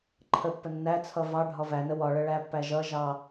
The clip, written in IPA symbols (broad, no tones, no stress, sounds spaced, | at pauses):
ǃʰ ə pː ə nː æ t͡sʰ ʌ v ɑ ɖʱ ɒ v æ n ə w ɒ ɭ ə ɭ æ pː æ ʒ ʌ ʒ ɑ